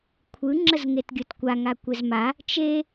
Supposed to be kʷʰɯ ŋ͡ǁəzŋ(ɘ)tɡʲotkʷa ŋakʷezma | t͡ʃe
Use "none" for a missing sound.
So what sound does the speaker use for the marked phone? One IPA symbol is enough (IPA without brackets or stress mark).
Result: e